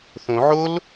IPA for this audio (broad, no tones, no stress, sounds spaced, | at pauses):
θ õ ʕ o l